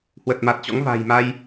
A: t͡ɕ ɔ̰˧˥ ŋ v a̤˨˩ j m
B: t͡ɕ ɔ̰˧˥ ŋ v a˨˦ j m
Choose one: A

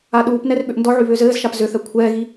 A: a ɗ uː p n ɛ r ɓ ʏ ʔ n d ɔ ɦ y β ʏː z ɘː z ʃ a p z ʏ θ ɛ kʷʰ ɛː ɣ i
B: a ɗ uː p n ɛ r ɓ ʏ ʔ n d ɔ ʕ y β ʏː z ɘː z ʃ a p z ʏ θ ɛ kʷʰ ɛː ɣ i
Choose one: B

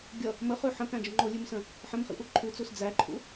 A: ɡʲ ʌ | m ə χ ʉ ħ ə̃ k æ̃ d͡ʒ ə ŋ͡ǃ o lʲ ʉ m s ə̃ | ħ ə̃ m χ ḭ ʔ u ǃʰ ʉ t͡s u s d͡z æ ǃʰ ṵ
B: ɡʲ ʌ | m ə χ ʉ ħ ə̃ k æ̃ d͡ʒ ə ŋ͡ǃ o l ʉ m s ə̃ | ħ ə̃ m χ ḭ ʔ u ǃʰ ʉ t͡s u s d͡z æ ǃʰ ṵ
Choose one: A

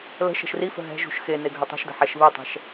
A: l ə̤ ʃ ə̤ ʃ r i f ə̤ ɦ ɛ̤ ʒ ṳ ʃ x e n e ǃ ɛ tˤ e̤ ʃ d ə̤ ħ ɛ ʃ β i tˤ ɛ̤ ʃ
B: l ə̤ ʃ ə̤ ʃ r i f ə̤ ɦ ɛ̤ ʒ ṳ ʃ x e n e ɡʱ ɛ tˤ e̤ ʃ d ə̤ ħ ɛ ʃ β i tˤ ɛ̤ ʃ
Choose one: B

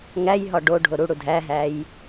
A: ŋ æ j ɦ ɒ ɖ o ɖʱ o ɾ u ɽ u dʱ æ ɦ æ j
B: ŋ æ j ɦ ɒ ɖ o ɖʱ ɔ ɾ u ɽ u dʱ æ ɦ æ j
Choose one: A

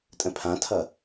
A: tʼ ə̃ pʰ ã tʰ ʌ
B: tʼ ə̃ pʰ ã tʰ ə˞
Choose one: A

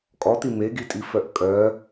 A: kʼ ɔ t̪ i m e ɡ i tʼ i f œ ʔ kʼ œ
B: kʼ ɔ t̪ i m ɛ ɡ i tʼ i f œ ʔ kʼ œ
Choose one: A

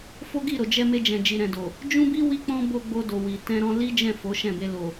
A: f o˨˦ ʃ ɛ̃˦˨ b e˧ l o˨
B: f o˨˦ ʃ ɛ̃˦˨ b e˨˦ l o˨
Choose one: A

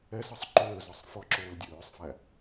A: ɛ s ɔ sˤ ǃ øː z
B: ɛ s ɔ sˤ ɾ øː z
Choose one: A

